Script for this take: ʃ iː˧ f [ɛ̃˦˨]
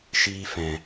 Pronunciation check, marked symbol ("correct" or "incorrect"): incorrect